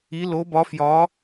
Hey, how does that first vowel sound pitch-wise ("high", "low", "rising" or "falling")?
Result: rising